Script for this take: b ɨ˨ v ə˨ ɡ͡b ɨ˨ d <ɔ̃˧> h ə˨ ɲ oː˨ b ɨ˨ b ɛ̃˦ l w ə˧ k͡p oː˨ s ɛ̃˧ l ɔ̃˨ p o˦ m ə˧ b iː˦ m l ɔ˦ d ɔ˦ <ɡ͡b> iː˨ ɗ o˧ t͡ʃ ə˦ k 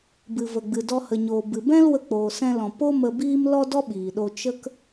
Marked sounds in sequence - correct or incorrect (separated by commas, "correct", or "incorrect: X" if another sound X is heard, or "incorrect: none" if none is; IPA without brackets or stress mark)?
incorrect: ɔ˧, incorrect: ɓ